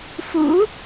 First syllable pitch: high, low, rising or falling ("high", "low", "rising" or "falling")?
rising